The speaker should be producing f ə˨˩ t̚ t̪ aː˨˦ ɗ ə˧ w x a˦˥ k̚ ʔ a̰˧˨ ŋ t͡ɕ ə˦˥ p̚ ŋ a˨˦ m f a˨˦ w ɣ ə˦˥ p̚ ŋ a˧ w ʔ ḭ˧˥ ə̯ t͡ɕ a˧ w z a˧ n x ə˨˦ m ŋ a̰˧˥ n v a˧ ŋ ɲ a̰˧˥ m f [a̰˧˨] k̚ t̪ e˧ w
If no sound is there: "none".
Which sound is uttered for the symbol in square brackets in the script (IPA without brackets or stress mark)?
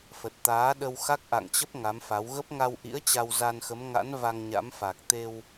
a˨˩